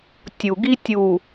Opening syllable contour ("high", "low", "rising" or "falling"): low